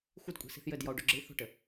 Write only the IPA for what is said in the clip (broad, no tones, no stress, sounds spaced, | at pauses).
xʷ ɨ d kʷʼ i̤ s i̤ θ j ɘ d j ɔ u̯ ɖ u ɡ͡ǁ ɨ i̯ θ o̤ ʈ ɘ